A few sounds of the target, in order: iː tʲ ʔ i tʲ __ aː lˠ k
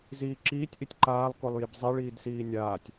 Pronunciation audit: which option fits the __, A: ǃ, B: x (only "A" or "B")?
A